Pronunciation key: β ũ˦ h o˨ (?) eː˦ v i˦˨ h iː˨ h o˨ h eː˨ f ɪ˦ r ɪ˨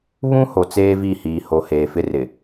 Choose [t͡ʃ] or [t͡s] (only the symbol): t͡s